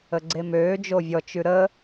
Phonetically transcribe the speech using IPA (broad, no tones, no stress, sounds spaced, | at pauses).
ə ɡ͡ǀ e m øː d͡ʒ o vʲ ɔ t͡ʃ ʉ ɾ ə